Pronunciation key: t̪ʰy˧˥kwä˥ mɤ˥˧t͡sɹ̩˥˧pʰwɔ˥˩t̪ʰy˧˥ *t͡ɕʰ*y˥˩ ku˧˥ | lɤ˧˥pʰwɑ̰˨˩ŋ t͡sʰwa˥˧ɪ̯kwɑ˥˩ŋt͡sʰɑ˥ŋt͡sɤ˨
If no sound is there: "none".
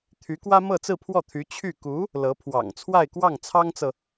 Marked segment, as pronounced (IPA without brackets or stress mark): t͡ɕʰ